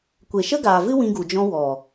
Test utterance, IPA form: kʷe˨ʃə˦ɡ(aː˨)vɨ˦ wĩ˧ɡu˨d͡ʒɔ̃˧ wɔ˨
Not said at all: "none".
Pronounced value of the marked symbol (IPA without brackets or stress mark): aː˨